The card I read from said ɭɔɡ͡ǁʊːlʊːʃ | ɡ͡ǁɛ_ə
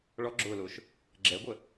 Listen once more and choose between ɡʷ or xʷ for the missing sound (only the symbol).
ɡʷ